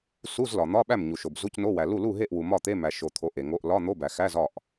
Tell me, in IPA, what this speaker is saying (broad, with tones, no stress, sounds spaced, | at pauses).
s u˧˥˧ z l ɒ˨ n̪ ɒ˧˥˧ ɓ æ˥˩ m ɲ u˨ ʃ o˨ b z u˧˥˧ c n o˧˥˧ w æ˨ l u˥˩ l u˥˩ ɦ e˥˩ ʔ w u˨ m ɒ˥˩ t̪ e˧˥˧ m æ˨ ʃ o˨ t̪ʰ o˨ ʔ e˨ ŋ o˧˥˧ ʔ l ɒ˧˥˧ n̪ o˧˥˧ b æ˨ x æ˧˥˧ z ɒ˥˩ ʔ